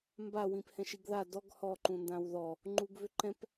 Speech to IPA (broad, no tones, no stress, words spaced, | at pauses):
mba wĩphɛ̃ʃiɡða dɔɡ hɔ ǃũndãwðɔ | ŋ͡ǃuɡvʏǃɛ̃p